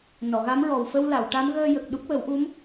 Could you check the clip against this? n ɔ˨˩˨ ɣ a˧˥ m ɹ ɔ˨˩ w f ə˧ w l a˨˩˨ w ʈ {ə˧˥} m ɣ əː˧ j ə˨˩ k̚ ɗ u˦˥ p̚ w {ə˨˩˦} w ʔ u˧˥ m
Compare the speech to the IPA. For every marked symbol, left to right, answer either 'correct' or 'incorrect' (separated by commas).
incorrect, correct